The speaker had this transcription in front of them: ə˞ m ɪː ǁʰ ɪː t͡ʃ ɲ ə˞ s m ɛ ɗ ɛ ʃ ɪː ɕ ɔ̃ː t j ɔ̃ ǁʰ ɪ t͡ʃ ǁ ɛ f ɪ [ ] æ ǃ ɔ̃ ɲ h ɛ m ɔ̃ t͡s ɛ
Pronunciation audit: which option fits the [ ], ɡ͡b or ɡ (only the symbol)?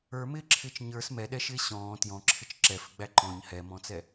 ɡ͡b